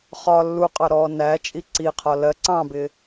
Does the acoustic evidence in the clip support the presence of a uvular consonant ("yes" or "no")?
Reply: yes